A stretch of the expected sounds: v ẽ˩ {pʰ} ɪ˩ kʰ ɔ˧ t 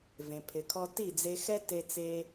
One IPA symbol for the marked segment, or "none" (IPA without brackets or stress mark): pʰ